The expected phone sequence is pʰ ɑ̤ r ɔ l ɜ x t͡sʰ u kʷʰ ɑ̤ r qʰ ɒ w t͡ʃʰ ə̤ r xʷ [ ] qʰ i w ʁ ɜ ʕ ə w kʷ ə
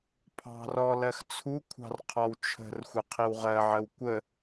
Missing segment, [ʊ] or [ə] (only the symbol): ə